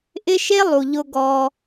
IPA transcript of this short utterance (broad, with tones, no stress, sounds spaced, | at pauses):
ʔ ɪ˧ ʃ e˧ lˠ u˨ ʎ ʊ˧ ɡ ɔ˧